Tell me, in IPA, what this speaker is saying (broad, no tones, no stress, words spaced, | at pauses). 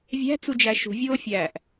vʲæ̤t͡sud͡ʒæ ʃṳvʲoːfʲæːʔ